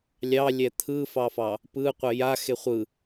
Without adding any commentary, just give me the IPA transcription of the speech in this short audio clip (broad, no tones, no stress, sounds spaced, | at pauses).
lʲ ɑ lʲ ɛ t̪ʰ ɯ f ɑ f ɑ | p ɯ qʷ ɛ j a x e χʷ ɯ